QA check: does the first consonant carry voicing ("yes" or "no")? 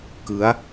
no